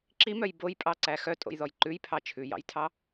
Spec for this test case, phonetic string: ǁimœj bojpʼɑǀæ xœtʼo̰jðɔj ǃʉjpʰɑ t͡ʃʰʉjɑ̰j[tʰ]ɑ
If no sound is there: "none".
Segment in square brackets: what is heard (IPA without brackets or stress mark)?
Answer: tʰ